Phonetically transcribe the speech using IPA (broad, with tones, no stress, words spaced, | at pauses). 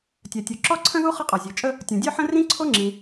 tʲœ˩tʲu˩ ǁɔ˥ǀʰə̃˥ðu˥ χə˥qʼɔ˩zʲø˩t͡ʃʼə˥ | tʲõ˩dʲœ˥ħə̃˥ rĩ˥ǀʰo˥ŋ͡ǁĩ˩